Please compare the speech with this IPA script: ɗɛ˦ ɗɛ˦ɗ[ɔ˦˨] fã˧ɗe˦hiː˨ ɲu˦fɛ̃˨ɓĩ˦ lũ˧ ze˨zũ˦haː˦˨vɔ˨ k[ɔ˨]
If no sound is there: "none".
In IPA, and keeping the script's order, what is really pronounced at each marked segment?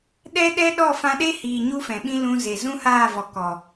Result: ɔ˦˨, ɔ˨

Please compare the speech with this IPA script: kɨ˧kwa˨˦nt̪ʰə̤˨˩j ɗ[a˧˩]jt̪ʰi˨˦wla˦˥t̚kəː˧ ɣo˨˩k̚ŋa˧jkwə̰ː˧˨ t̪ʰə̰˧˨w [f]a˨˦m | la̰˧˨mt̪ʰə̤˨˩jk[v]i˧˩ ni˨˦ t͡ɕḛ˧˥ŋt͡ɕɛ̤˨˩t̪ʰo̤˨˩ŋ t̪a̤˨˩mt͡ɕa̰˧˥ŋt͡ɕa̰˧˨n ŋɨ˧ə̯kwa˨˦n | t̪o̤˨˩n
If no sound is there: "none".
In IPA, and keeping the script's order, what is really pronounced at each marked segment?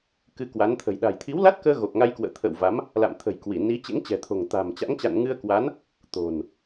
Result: a̤˨˩, v, w

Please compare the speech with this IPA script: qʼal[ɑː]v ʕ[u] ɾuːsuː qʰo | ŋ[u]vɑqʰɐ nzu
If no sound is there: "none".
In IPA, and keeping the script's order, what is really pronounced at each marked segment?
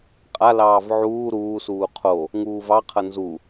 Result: ɑː, uː, uː

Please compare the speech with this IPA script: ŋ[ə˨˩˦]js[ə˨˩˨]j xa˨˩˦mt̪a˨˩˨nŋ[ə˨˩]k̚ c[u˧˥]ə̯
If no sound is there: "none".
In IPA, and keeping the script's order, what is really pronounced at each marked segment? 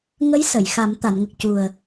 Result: ə˧˥, ə˨˩˨, ə˨˩, u˨˩

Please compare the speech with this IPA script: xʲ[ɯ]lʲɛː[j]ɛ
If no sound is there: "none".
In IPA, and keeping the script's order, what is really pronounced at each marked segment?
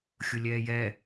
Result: ʊ, j

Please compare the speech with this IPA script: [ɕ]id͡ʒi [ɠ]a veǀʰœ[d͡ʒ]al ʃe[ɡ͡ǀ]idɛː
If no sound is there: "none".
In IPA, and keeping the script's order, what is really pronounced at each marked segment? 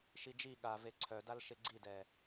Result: ʃ, ɠ, d, ɡ͡ǀ

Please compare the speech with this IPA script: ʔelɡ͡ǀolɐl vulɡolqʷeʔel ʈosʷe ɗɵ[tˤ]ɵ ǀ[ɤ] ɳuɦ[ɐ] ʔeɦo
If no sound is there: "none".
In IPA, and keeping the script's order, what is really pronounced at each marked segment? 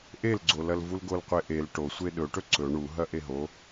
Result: ʈ, ɵ, ɐ

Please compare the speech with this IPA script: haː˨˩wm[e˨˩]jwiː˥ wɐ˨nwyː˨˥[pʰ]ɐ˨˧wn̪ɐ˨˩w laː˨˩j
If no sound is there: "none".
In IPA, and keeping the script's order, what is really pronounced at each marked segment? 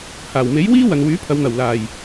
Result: e˨˥, pʰ

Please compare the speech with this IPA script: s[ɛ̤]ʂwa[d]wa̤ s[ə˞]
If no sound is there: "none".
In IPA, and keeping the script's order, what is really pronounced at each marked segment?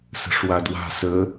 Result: ə̤, d, ə

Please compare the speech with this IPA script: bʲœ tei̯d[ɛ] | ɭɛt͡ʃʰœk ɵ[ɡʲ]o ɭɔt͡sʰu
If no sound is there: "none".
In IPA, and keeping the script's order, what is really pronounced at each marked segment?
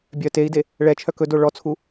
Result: e, d

